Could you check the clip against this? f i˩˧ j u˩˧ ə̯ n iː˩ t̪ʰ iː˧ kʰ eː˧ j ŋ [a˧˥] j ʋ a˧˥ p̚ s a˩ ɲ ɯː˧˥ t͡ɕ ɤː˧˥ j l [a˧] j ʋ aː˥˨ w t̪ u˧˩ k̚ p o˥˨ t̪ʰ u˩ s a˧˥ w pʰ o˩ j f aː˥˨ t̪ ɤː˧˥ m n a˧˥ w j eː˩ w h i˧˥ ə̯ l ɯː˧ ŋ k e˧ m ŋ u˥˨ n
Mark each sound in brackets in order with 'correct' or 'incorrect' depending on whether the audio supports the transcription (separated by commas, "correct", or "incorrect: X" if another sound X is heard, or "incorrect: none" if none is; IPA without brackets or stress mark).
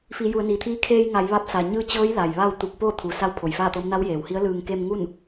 incorrect: a˩˧, incorrect: a˩